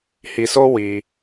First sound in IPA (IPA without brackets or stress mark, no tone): h